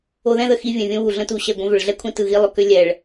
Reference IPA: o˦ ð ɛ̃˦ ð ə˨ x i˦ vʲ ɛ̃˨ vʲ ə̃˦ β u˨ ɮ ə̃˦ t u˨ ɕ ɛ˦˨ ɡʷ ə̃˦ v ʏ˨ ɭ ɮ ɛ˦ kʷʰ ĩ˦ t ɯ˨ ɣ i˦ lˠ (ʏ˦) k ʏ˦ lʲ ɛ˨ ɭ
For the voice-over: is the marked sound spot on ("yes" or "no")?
yes